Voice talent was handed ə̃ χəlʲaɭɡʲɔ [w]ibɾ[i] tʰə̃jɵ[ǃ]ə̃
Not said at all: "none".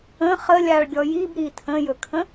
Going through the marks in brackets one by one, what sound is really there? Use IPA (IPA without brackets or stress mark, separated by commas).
j, i, kʰ